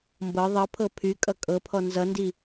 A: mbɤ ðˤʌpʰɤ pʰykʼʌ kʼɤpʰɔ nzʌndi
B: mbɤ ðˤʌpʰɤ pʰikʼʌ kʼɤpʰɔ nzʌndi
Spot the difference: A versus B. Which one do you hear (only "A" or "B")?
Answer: A